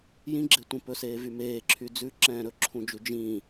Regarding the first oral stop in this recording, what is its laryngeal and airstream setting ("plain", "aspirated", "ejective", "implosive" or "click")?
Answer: click